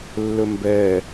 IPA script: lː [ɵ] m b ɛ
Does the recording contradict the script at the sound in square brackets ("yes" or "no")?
no